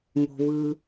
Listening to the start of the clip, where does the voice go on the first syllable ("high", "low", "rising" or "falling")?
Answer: low